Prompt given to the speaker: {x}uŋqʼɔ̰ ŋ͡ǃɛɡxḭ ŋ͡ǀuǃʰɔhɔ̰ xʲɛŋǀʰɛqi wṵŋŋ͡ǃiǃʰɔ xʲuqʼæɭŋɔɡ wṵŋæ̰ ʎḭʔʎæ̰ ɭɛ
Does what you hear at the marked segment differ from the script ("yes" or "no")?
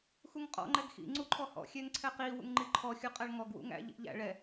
no